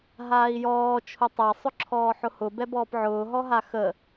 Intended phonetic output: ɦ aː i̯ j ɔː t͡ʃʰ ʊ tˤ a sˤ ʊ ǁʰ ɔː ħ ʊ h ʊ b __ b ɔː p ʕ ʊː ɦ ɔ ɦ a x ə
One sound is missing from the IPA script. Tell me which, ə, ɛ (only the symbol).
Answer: ɛ